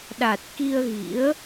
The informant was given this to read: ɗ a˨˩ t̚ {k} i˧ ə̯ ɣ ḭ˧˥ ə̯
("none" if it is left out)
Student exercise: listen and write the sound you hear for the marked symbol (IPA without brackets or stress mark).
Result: k